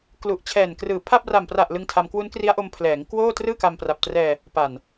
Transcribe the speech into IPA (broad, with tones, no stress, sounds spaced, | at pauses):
k l u˨˩ ʔ t͡ɕʰ ɛː˨˩ n k r ɯː˨˩ pʰ a˥˩ p̚ r a˨˩ m p r a˨˩ ʔ l ɯ˧ ŋ tʰ a˧ m k w u˦˥ n k r i˦˥ a̯ ʔ o˧ m pʰ l ɛː˩˦ ŋ k w oː˥˩ t r ɯː˥˩ k a˧ m p r a˨˩ p̚ t r ɛː˧ | p a˨˩ n